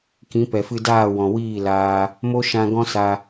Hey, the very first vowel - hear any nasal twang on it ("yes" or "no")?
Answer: yes